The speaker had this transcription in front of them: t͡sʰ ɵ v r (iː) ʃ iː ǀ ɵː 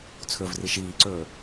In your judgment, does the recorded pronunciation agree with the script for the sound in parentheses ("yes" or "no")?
no